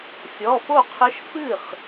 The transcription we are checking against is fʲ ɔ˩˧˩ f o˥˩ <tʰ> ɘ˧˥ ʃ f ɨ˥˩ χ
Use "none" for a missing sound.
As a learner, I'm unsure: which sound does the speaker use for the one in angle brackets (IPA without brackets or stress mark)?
qʰ